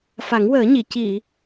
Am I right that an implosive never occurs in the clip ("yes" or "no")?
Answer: yes